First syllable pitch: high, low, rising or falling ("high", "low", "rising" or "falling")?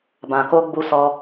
low